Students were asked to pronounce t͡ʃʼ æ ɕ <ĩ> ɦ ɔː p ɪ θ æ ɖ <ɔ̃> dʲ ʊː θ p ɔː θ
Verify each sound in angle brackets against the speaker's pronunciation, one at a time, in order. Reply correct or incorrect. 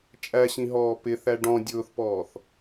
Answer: correct, correct

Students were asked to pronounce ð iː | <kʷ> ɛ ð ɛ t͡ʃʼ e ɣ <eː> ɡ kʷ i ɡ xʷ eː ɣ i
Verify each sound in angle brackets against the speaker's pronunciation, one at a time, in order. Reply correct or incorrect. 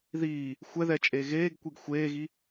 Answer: incorrect: xʷ, correct

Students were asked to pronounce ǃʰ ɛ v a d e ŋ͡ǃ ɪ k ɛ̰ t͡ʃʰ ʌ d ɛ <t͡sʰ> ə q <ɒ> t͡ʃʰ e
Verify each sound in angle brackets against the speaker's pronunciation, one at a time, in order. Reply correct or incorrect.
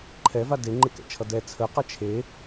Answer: correct, incorrect: ʌ

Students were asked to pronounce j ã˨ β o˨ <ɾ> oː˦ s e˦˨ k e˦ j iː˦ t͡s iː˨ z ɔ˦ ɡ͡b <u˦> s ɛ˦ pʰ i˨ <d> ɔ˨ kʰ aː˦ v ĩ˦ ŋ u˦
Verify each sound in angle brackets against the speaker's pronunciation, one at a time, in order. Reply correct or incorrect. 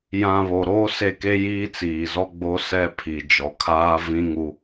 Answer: correct, incorrect: o˦, incorrect: d͡ʒ

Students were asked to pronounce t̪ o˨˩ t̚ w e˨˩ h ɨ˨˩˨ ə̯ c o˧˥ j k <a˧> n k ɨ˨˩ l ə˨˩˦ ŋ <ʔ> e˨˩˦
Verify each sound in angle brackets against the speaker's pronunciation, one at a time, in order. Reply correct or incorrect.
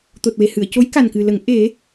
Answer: incorrect: a˨˩, correct

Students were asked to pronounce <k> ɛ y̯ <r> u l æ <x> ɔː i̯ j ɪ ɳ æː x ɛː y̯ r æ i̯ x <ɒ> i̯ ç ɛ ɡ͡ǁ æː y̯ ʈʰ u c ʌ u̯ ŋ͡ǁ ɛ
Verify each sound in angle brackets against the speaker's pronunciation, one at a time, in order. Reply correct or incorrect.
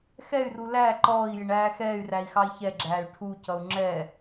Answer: incorrect: x, correct, incorrect: ǃ, incorrect: ɑ

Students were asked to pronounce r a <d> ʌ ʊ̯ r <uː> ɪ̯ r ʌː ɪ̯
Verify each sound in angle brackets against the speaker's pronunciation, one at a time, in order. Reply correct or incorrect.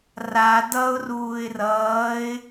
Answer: correct, correct

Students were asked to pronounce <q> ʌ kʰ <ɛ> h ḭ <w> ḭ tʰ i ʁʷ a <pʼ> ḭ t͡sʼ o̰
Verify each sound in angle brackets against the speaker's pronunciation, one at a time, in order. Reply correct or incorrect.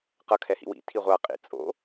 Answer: correct, correct, correct, incorrect: qʼ

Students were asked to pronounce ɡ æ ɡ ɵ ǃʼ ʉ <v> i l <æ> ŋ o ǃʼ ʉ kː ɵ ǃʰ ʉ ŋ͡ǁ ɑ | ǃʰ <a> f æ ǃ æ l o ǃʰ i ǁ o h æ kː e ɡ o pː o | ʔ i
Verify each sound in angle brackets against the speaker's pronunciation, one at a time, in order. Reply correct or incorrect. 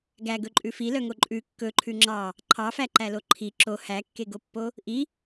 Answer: incorrect: f, incorrect: œ, incorrect: ɑ

